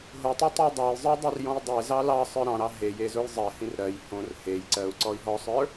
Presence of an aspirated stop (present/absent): absent